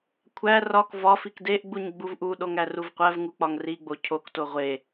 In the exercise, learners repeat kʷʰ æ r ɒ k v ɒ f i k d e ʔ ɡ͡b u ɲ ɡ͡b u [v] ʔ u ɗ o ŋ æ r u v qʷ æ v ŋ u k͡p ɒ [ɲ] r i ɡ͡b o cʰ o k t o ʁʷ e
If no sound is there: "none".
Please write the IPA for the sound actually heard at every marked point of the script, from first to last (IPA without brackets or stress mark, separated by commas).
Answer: v, ŋ